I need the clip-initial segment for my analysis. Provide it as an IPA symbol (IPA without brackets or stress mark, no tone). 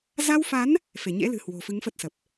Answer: z